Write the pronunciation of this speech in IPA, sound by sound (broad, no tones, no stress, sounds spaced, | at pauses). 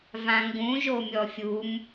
v ã ŋ ɡ ũ ʒ o mʲ ɔ fʲ u m